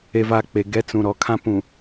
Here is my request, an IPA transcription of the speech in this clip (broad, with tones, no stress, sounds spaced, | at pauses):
e˨ v a˨ k͡p e˨ ɡ ɛ˨˦ t͡s ũ˨ ɾ ɔ˨ kʰ ã˦ p ũ˨